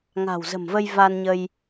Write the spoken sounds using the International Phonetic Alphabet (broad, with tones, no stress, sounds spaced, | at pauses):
ŋ a̤˨˩ w z ə̤˨˩ m v ə˧ j v a˧ n ɲ ə˧ j